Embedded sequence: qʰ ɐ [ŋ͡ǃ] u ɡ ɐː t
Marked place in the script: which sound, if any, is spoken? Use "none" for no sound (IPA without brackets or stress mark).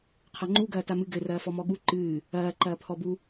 ŋ͡ǃ